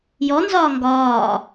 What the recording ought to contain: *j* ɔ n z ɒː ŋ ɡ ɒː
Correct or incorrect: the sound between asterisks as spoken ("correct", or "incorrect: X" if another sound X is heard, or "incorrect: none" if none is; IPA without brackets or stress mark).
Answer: correct